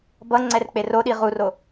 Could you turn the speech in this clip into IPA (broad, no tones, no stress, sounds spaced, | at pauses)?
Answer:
b ʌ ŋ͡ǀ ɛ r k͡p e r o ɗ i ʁ u r o